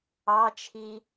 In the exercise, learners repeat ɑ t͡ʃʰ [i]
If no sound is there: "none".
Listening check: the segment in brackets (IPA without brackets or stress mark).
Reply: i